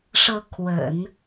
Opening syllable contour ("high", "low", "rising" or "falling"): rising